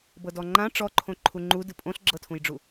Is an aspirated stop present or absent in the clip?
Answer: present